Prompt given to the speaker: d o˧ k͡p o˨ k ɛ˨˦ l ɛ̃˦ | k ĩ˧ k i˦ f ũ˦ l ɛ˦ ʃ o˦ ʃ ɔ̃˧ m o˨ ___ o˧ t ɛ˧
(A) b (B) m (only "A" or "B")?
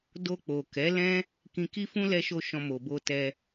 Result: A